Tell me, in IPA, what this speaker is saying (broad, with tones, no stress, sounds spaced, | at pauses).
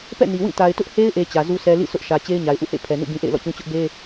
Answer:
p ɛ̰˦˨ n i˨ w ĩ˦˨ t a˨ ɪ̯ t ʊ˦ ʔ h e˦ ɪ̯ ʔ e˨ t͡ɕ ä˨ z u˦ s ɛ˦ l ḭ˦˨ sʰ ʊ˦ ʔ ʃ ä˨ t͡ɕ e˦ ɪ̯ ɲ a˨ ɪ̯ ʔ ṵ˦˨ h ḛ˦˨ pʰ ɛ˨ n ṵ˦˨ b ĩ˦ ʔ ḛ˦˨ ɪ̯ l ɔ̰˦˨ t͡ɕ ũ˦ t͡ɕ ʊ˦ ʔ b e˦